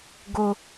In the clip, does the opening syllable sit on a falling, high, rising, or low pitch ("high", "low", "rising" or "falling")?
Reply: high